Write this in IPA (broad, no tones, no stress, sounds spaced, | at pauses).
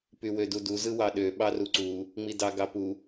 p y w ø d u d u z ɯ w ɑ ɗ ø ɓ ɑ r u ǀ u | ŋ͡m i d ɑ ɡ ɑ p u